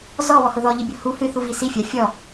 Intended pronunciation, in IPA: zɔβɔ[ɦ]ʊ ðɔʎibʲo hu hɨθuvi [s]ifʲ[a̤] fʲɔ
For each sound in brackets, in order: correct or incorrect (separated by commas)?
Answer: incorrect, correct, incorrect